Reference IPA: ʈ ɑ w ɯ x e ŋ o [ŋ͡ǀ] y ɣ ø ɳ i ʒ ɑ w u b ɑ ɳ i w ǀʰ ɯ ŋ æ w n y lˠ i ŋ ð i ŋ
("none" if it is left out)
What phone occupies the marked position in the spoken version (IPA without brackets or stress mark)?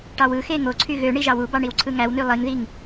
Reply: ǀʰ